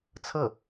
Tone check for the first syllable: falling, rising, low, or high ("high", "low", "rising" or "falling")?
falling